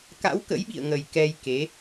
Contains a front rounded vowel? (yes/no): no